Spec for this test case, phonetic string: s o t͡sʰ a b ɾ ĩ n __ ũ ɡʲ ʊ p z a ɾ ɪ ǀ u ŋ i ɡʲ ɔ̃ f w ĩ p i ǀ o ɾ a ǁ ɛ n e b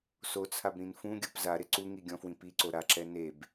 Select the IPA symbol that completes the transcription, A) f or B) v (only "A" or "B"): A